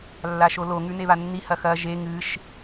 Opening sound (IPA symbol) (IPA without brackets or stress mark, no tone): lː